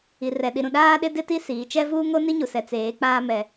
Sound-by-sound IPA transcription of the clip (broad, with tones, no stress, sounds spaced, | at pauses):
i˨ r ɛ˨ ɗ i˨ ɾ ũ˨ ɗ aː˦ ɗ ɪ˦ d ɪ˦ t i˦ s iː˨ t͡ʃ ɛ˦ v uː˦ ŋ o˦ n i˦ ɲ u˨ s ɛ˨ t͡s eː˨˦ k͡p aː˦ m ɛ˨